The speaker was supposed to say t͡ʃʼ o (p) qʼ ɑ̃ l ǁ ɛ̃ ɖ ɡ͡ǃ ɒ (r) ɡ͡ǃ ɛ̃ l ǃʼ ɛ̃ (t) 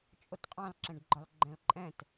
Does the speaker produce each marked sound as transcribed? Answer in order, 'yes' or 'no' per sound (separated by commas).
no, no, yes